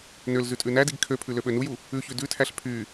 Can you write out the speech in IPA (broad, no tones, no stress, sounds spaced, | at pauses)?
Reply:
n ø l z ʉ tʼ ʉ n æ d i ɡ kʰ ø pʰ ʉ l ø ɓ ø n u j u | ʉ ç ʉ d ʉ tʰ æ ɬ pʰ y